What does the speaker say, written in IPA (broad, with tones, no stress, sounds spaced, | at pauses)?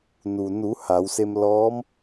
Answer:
n u˩ n u˩˧ h a˩˧ w s e˧ m l ɔː˧˥ m